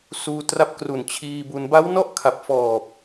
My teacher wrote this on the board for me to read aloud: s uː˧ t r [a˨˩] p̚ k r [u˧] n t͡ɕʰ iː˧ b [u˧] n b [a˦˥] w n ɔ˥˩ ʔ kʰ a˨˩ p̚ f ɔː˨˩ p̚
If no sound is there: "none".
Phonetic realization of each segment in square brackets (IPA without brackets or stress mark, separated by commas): a˦˥, u˨˩, u˧, a˦˥